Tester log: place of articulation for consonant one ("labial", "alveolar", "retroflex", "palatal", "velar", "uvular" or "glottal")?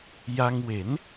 palatal